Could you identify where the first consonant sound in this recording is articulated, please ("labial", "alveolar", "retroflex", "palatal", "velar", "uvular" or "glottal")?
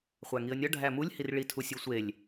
uvular